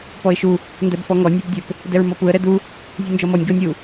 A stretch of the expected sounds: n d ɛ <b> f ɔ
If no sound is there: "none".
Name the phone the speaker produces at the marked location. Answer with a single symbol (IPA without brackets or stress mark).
b